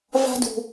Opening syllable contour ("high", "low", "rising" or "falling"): high